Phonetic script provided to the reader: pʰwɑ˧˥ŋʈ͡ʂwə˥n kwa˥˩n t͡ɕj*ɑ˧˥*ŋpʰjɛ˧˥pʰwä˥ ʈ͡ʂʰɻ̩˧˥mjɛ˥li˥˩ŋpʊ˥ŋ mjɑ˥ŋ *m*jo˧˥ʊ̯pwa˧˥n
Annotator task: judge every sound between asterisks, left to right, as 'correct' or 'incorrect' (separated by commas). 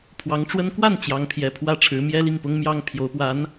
correct, incorrect